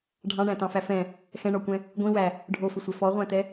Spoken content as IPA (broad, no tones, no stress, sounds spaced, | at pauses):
ɖʱ ɑ̃ ɳ æ̃ t ɑ̃ f æ f ɛ̃ | x ɛ̃ ɳ ɔ kʷ ɛ̃ | ɡʷ ĩ w æ | ɖʱ o f ɪ sʷ ɛ f ɔ ʁʷ æ̃ t ɛ